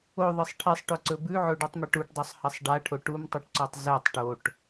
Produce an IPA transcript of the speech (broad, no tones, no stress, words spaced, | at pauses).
oðˤɨsˤ ʈʰisˤʈɵǀɵ bʉʕoɖutˤmiʈ uʈdˤosˤhɐsˤ ɖaʈʰo ʈumtˤuʈǀotˤ zɐtˤ ʈoʈ